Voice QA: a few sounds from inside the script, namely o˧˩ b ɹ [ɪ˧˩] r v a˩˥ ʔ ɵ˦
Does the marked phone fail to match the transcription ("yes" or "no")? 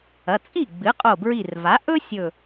yes